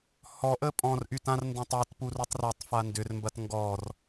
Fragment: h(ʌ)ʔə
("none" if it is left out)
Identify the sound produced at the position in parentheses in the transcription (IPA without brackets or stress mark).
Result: ɔ